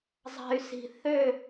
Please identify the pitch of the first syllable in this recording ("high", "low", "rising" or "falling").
low